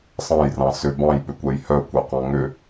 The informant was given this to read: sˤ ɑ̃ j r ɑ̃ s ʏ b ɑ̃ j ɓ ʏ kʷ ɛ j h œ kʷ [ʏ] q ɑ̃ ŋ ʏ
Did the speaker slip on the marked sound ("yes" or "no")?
yes